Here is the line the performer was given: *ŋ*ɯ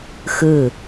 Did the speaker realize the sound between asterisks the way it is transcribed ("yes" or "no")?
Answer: no